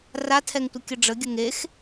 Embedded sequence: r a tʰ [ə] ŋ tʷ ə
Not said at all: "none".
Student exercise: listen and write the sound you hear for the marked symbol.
ɛ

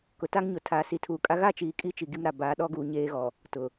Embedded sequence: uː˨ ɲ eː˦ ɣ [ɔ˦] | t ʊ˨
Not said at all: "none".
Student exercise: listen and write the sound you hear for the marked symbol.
ɔ˨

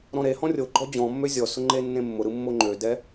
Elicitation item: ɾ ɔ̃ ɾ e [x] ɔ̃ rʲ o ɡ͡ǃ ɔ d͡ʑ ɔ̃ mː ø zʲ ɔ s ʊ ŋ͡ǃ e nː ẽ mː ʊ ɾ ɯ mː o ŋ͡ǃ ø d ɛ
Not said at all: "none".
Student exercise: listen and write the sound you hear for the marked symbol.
h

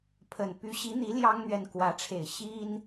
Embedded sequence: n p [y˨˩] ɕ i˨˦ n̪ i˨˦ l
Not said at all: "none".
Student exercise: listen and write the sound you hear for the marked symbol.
y˨˦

